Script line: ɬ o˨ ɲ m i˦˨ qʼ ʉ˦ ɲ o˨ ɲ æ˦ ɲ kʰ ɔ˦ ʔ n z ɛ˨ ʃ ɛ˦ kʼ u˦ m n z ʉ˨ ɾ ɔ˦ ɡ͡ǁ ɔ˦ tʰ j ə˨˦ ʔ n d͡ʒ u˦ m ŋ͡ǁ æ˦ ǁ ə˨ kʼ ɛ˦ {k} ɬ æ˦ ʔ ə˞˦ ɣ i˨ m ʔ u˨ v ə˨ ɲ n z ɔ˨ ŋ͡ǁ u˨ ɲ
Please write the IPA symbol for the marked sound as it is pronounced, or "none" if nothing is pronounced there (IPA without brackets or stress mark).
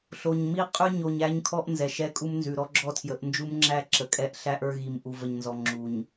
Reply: ʔ